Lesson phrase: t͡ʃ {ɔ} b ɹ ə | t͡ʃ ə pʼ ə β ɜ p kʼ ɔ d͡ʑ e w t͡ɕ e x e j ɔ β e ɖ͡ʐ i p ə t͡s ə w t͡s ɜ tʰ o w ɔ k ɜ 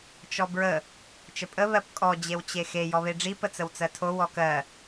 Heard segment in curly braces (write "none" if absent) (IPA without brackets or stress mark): ɔ